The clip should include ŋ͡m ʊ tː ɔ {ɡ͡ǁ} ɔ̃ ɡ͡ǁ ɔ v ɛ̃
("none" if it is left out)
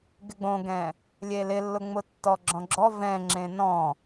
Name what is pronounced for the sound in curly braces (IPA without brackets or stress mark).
ɡ͡ǁ